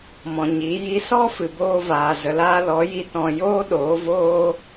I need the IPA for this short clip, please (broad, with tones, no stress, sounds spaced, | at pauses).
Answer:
m ɔ̃˨ ɲ i˨˦ j i˧ s ɔ˦ f ɨ˨ b oː˧ v aː˨ z ə˨ l aː˧ l ɔ˨˦ j i˧ t ɔ̃˧ j oː˦ ɗ oː˨˦ v oː˦